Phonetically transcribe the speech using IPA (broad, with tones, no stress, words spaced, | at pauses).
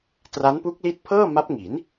tra˦˥npu˦˥k̚li˦˥t̚pʰɤː˥˩ ma˦˥p̚ŋi˩˦n